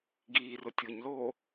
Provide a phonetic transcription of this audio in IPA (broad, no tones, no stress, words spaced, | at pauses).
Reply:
ɡiː rʊtʲʊɲloː